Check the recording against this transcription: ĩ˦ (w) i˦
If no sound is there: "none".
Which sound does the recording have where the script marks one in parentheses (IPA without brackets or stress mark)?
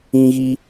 ɣ